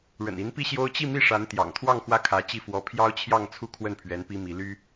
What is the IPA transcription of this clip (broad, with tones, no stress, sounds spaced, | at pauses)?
ɻ ə̰˨˩ n i˧˥ n p i˥˩ ɕ j o˥ ʊ̯ t͡ɕ i˥˧ m i˥˩ ʂ a˧˥ n t̪ j ɑ̰˨˩ ŋ t̪ʰ w ɑ˥˧ ŋ x w ä˥˩ kʰ ä˧˥ t͡ɕ i˥˩ f w ɔ˧˥ pʰ j ɑ˥ ʊ̯ t͡ɕʰ j ɑ˥˧ ŋ t͡sʰ u˥˧ kʰ w ə˥˩ n pʰ ɥ ɛ˧˥ n p i˥ m i˧˥ l y˥